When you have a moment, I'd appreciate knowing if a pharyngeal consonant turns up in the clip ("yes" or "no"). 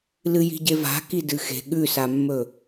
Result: no